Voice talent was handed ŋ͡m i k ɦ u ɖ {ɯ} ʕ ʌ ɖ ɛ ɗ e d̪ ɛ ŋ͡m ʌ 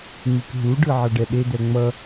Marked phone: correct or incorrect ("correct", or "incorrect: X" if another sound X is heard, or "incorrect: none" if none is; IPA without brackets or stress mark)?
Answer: correct